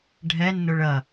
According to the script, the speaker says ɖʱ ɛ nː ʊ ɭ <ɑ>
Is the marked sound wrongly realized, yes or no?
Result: yes